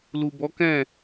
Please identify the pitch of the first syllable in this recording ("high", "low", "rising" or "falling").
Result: low